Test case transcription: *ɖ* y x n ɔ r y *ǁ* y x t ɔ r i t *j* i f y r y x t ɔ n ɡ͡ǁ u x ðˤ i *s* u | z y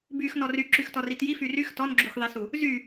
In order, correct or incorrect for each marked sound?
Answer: incorrect: b, correct, correct, correct

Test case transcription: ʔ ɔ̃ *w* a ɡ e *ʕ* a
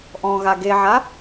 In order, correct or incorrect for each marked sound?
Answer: incorrect: ɣ, correct

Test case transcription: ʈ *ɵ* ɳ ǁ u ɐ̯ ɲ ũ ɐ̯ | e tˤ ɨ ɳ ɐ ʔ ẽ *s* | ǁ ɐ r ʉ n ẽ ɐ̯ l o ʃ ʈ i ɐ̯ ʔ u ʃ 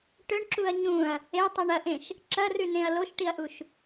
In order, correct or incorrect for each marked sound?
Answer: correct, incorrect: ʃ

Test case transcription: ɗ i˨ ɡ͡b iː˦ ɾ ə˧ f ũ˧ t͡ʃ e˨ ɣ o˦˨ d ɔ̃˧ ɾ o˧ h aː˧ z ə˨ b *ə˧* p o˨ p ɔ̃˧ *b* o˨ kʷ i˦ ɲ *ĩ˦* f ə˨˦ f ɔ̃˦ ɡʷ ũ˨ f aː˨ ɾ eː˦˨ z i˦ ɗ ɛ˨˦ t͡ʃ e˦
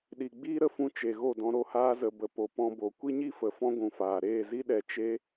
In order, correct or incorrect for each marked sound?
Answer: incorrect: ə˨, correct, incorrect: i˦

